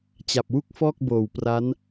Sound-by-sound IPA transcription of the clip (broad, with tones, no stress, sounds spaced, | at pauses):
t͡ɕ a˨˩ p̚ w u˥˩ k̚ f ɔː˥˩ k̚ b oː˨˩ w p r a˦˥ n